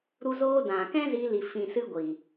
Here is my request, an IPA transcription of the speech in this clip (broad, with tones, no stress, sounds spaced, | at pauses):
ɾ u˧ z oː˧ d ã˨ k ɛ̃˦ z i˧ l i˨ f ĩ˨ s ɨ˧ ɡʷ i˨